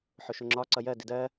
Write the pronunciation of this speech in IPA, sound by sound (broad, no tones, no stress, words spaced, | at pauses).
ħʊʃʊŋ͡ǁɒ ǀʌjɜ dɪdɜ